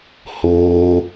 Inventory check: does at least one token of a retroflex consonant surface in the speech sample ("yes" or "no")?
no